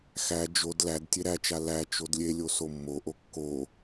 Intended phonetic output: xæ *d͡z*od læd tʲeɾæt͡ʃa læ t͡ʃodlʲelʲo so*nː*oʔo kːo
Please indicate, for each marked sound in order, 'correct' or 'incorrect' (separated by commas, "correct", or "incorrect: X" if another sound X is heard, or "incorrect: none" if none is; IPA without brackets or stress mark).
incorrect: d͡ʒ, incorrect: mː